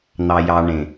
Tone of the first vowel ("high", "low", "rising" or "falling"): low